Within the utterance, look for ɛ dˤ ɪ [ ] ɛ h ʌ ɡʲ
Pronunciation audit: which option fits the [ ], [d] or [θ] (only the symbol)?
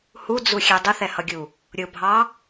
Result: θ